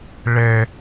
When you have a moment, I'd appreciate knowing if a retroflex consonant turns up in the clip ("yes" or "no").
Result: yes